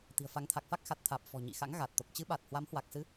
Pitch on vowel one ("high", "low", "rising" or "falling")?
low